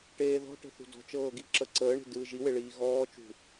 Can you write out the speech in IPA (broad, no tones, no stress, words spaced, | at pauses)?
ʈeːðɔ̤ʈə̤ θṳdɔ̤t͡ʃɤː ɡiǁəǀəːɳe̤ dɯːʒiwe ɭiːɣɔːt͡ʃṳ